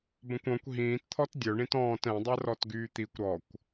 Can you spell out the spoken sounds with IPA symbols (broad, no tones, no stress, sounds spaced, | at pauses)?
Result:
b ə̃ kʷ ɔ̃ kʷ ɦ ĩː t t̪ʰ ɔ t dʲ œ ɳ ĩ t ɔ̃ː t ɛ̃ dˤ ɛ r ɔ t ɡ yː t̪ i kʷ ɾ ɔ kʷ